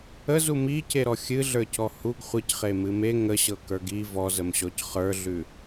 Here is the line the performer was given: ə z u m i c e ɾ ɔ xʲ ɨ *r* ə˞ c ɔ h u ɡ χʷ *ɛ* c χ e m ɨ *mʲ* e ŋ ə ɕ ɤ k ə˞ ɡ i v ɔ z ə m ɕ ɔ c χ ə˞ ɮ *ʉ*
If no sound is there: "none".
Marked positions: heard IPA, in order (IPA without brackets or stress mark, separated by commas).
ɮ, ɨ, m, ʉ